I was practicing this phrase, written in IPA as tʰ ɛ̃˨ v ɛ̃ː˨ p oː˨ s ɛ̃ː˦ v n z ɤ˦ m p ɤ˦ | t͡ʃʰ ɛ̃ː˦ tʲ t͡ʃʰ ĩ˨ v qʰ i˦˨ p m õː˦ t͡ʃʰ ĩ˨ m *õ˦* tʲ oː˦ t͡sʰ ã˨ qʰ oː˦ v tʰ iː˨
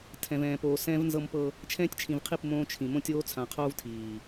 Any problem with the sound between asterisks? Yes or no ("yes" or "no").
no